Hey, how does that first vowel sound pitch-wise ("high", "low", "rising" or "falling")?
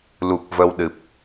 low